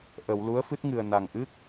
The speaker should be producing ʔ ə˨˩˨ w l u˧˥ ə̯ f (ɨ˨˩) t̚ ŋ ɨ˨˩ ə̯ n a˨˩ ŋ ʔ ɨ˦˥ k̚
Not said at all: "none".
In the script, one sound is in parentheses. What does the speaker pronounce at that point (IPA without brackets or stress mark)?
ɨ˦˥